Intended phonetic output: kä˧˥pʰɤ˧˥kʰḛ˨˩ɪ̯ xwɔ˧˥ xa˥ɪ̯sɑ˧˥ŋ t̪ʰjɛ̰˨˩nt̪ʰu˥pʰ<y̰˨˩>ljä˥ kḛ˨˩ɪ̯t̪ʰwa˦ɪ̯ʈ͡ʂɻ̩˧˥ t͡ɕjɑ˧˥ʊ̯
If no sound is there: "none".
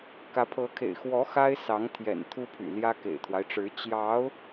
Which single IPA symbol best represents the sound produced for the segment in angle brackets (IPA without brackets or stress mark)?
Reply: y̰˨˩